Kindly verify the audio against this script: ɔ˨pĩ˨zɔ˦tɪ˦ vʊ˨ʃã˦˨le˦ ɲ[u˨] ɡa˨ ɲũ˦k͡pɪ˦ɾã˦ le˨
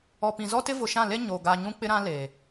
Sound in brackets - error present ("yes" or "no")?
yes